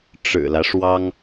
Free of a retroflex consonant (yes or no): no